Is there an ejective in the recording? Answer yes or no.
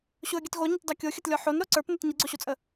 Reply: yes